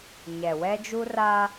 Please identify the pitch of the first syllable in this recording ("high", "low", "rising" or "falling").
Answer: low